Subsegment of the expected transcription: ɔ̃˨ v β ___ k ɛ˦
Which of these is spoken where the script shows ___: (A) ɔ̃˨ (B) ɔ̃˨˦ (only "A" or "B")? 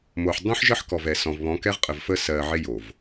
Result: B